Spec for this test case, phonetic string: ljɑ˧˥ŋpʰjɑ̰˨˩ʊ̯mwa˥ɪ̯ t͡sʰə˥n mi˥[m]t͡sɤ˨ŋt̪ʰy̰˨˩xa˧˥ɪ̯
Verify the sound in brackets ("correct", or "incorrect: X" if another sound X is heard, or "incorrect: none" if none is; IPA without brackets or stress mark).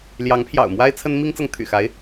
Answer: incorrect: ŋ